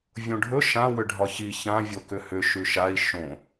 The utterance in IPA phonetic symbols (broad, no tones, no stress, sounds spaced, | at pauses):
vʲ õ ɖʱ ɵ ʃ ã w ʏ ɖʱ ɒ ç i ç ã vʲ o k ʏ h ʏ ʃ ʉ ʃ a i̯ ʃ õ